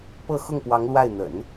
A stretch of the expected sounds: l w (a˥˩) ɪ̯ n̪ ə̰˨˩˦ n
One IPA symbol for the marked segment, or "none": a˥˩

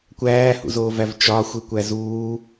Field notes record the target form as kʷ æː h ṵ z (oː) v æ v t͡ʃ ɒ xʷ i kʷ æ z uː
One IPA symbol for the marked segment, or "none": oː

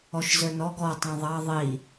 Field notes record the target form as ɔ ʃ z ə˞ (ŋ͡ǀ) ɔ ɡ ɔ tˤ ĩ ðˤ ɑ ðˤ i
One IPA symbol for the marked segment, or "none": n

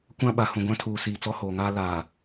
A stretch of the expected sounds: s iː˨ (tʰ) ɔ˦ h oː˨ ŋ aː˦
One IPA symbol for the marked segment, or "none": t͡s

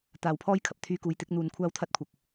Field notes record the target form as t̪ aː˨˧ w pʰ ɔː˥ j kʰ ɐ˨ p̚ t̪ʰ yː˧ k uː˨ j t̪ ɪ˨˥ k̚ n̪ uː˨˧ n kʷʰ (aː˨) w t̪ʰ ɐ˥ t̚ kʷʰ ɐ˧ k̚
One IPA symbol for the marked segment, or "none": aː˥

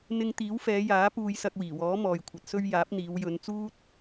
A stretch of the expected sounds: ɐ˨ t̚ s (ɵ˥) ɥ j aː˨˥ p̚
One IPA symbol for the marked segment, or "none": ɵ˧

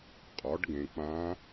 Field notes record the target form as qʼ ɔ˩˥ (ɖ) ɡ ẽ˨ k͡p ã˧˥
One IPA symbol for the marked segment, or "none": ɖ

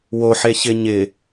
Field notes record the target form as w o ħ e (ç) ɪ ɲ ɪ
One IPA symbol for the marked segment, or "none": ç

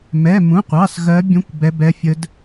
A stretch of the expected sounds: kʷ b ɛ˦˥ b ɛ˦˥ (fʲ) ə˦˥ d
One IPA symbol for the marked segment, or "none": fʲ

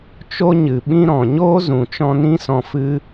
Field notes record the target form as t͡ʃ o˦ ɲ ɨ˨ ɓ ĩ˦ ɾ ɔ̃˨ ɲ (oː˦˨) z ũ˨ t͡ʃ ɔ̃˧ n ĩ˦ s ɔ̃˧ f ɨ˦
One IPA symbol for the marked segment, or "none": oː˦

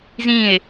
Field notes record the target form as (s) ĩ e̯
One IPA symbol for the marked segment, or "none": z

